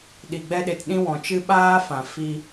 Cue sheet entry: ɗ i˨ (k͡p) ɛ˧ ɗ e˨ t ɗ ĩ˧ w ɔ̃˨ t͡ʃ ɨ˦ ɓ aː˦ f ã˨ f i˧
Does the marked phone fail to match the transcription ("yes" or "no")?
yes